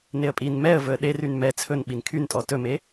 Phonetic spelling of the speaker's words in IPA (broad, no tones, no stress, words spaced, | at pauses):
neə̯pʼin mɛə̯ vɵə̯ɗeryn mɛ t͡sʰɵn ɓinkʰyntʼɔ tɵme